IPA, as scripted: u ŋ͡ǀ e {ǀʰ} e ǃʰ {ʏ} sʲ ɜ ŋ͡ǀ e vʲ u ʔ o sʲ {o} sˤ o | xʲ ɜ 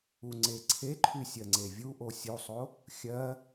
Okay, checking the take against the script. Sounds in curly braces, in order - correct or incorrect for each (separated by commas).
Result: correct, incorrect, incorrect